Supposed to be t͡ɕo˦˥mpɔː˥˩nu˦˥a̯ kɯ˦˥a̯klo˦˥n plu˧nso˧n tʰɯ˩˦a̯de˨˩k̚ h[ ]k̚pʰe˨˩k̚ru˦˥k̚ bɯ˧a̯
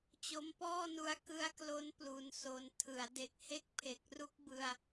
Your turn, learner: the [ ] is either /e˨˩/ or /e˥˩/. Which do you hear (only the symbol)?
e˥˩